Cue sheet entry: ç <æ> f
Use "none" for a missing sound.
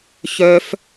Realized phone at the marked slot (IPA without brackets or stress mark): œ